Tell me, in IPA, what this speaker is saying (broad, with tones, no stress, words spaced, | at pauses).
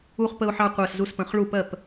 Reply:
u˧χ pə˧ʊ̯ħɑ˧qʷɜ˨˩s zu˧spə̃˨˩χɭu˥˩pɜ˥˩p